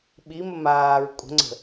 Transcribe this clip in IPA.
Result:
ɓ i m ə m aː ɹ kʷʼ ə̤ ŋ͡ǀ ə̤

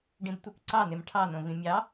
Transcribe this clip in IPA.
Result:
ɖ ĩ b tʷ ɯ k ǀ ɑ n e m ʈʰ ɑ n õ v ĩ mʲ ɑ

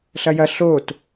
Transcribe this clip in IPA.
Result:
ɬ ɐ j ɐ ɬ o t

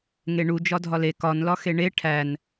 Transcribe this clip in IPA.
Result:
ŋ e ɳ u d͡ʒ ɒ dʱ ɒ l e k ɒ n l ɒ x e ɳ e ʈʰ æ n

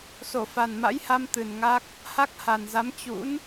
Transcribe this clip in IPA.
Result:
s o˧˩ f a˨˩ n m a̰˧˥ j h a˧ m t̪ ɨ˨˩ n ŋ a˦˥ k̚ | h a˦˥ k̚ h a˨˩ n z a˨˦ m t͡ɕ ṵ˧˥ n

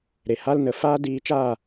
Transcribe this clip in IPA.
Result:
ɾ e˨ h a˦ l n ə˧ f aː˦ d iː˧ t͡ʃ aː˦˨

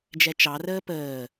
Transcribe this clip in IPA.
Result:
d͡ʒ ɛ t͡ʃ ɑ r əː p əː

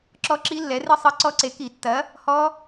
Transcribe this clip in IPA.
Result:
ǁ ɔ˦˥ ǁ i˦˥ lː ɛ˨˥ r ɨ˦˥ sˤ ɨ˨˥ ǀ ɔ˦˥ ǀ e˨˥ k i˧˩˧ tː ɐ˨˥ | h ɔ˦˥

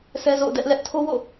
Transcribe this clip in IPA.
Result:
sʰ ɛ˦ z o̰˦˨ ʊ̯ d ɛ˦ ʔ l ɛ˦ ʔ tʰ o˦ w o̰˦˨

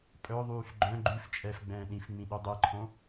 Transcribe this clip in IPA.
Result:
pʼ œ ðˤ yː f ɡ͡ǃ œ̃ ɡ͡ǃ ʉ f t͡ʃʼ ɛː f ɡ͡b ɛ̃ː ɗ ĩ f ŋ͡m ĩ ɗ ʉ dˤ e ǃʰ õ

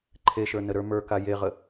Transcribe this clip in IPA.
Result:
ǃʰ e ʃ ə˞ n ə ɾ ə˞ m ə˞ k a j e ʁ ə

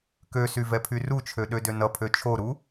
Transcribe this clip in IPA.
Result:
k ø s y v ɛ pʰ y r u t͡ʃʰ ø ɗ ø d ø n ʌ pʰ ø t͡ʃʰ o ɾ u

